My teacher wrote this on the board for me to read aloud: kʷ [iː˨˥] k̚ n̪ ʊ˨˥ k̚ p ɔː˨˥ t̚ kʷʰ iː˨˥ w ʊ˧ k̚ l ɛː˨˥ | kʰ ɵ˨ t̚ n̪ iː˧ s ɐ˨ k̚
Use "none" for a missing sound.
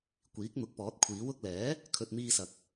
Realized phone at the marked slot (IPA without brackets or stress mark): iː˨˥